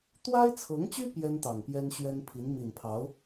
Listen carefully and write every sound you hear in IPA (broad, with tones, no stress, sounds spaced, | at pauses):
t̪ w a˥ ɪ̯ t͡sʰ ɤ˧˥ ŋ t͡ɕ y˥ p j ɛ˥ n t̪ ɑ˨˩ ŋ p j ɛ˥ n ɕ ɥ ɛ˥ n pʰ i˧˥ n m i˨˩ n pʰ ɑ˧˥ ʊ̯